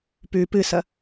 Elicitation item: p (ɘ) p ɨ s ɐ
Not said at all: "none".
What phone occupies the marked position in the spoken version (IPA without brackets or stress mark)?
ʉ